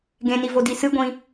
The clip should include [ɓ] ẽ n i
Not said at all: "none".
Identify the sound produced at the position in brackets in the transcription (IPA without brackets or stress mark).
ɡ